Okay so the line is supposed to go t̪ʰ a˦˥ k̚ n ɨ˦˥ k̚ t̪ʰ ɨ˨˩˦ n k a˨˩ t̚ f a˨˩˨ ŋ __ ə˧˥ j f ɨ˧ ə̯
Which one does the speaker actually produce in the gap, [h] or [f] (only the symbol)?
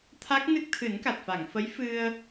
f